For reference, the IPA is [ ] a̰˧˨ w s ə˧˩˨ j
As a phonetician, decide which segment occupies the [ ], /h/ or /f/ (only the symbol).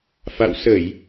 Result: f